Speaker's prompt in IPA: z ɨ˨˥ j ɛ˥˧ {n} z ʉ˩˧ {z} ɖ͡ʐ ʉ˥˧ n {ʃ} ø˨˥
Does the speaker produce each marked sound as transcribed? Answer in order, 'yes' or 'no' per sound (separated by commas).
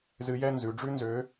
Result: yes, no, no